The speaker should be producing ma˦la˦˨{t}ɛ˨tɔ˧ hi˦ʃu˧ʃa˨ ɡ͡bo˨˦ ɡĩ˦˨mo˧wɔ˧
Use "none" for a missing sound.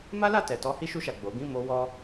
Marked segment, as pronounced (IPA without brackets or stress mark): t